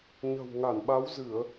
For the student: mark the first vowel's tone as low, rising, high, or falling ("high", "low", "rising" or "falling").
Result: low